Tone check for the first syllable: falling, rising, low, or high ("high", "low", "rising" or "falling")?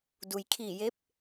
low